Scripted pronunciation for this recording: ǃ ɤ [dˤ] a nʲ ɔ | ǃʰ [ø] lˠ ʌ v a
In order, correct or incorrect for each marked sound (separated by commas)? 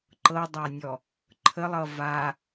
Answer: correct, incorrect